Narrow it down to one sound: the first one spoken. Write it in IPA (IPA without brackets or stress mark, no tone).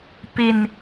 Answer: p